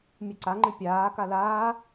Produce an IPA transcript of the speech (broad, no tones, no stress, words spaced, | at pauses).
mʲɨǀaŋ͡ǃɨ pʲaː kalaː